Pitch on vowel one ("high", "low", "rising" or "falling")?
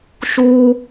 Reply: high